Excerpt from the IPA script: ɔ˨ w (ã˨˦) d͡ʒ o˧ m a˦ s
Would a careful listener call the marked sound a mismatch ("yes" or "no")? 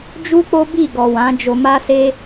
no